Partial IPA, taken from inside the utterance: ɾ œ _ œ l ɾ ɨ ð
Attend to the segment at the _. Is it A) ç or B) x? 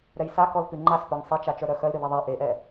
B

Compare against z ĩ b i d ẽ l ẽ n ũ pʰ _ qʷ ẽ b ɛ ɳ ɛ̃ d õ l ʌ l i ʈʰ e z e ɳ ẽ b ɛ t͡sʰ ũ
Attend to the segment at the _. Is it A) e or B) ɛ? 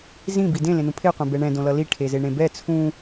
A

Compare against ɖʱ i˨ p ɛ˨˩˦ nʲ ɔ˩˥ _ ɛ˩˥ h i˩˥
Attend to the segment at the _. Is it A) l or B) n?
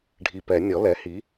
A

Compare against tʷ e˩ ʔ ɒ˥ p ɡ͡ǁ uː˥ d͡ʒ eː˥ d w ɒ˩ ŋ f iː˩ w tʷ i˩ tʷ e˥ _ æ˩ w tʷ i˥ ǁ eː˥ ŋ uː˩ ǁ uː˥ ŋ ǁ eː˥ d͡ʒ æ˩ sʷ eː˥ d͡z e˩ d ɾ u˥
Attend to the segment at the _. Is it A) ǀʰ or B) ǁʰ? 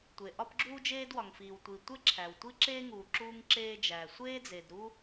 B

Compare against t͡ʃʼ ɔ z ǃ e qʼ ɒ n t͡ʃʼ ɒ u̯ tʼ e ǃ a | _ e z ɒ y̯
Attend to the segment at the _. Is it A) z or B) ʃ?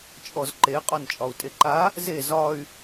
A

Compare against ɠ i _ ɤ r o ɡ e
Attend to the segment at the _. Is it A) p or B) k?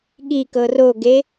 B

